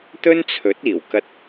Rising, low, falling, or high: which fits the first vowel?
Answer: high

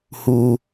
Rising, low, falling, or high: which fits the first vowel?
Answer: low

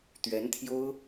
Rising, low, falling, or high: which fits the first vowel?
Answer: rising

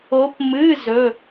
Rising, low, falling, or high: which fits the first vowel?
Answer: rising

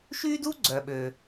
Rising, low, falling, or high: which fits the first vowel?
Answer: high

